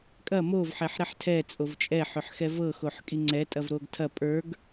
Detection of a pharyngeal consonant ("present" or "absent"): present